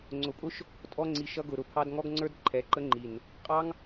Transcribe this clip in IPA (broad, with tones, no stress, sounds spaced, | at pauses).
ŋ͡ǀ ʊ˨ pʼ ʊ˦ ʃ | tʼ ɔ˧ ŋ͡ǀ i˨ ʃ ʌ˧ ɡ ʊ˨ ɾ ʊ˨ pʰ ɑ˧ d ŋ ɔ˦ ɡ ŋ͡ǀ ə˞˦ d ǃʰ ɛ˨˦ ǃ ə˦ ŋ͡ǃ i˨ n | qʼ ɑ˦ ŋ